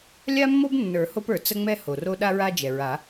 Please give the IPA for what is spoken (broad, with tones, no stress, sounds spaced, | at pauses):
lʲ a˦ mː o˦ b nː ə˞˨˩˦ h o˦ p ə˞˩ t͡s ə˦ ŋ͡m ɛ˦ h o˩ r o˦ ɗ a˦ ɹ a˦ d͡ʒ ɛ˩ ɹ a˨˩˦